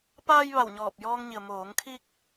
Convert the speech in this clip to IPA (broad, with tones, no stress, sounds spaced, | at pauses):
p aː˧ j ʋ a˧˩ w ɲ ɔː˧˩ p̚ j ɔː˧ ŋ ɲ i˩ ə̯ m oː˩˧ ŋ kʰ i˧ k̚